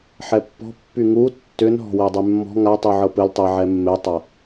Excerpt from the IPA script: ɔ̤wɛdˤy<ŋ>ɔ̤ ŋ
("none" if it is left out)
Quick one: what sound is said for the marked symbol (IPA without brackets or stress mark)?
mː